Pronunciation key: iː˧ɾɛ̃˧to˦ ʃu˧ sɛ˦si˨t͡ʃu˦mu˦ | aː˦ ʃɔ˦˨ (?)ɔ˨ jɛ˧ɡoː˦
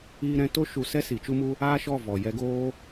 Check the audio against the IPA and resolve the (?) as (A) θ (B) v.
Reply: B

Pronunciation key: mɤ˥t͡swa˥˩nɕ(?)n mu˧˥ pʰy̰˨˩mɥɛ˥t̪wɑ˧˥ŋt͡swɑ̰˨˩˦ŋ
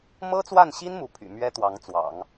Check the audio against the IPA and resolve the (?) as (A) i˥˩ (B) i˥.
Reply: B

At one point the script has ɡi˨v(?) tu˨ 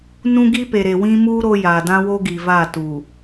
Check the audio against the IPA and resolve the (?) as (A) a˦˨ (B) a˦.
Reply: A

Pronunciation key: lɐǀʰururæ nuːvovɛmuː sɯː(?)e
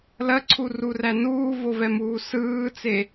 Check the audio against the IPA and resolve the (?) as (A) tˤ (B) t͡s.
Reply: B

